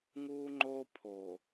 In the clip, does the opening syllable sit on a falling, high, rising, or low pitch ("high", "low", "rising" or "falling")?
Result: high